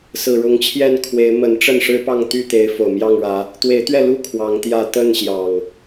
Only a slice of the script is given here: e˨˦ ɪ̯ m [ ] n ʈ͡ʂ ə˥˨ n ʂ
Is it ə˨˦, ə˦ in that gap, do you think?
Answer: ə˨˦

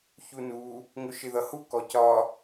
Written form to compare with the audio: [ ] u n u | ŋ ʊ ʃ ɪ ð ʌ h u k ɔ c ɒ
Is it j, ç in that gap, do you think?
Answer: ç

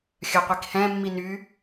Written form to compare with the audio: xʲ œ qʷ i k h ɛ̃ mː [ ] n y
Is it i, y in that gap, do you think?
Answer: i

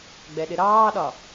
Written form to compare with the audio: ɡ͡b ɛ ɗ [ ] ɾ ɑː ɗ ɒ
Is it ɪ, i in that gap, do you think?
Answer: ɪ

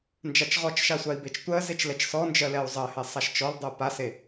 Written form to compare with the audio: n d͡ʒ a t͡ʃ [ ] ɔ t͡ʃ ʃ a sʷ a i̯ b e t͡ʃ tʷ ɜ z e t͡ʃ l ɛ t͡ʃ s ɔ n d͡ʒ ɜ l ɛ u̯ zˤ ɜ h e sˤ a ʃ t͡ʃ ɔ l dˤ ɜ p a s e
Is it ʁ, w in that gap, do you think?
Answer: ʁ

